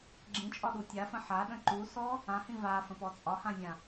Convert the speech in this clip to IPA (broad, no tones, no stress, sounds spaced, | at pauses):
ɡ͡ǁ ĩ t͡ʃʼ ɒ ɗ u tʲ a f ə̃ ħ a ɗ ə̃ ǃ u s ɔ | ã h ĩ v a f ə̃ p ɔ t͡sʼ ɒ h ã zʲ ã